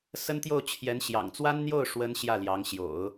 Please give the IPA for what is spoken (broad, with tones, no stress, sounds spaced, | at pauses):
s ə˥ n t̪ j o˥˩ ʊ̯ t͡ɕʰ j ɛ˧˥ n ɕ j ɑ̰˨˩ ŋ t͡s w a˥ n n̪ j o˥˩ ʊ̯ ʂ w ə˥ n ɕ j ä˥˩ l j ɑ˧˥ ŋ ɕ j o̰˨˩˦ ʊ̯